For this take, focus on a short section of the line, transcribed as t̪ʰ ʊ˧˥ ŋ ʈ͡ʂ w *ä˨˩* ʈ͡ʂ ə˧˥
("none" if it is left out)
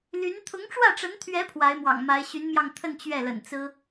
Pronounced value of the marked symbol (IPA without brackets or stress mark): ä˥˩